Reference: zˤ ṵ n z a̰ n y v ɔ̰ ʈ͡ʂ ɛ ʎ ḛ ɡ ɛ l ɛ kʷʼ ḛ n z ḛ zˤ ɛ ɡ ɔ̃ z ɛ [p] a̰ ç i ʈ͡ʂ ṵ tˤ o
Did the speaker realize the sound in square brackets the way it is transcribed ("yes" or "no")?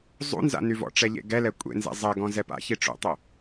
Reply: yes